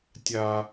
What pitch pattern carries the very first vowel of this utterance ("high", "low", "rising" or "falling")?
high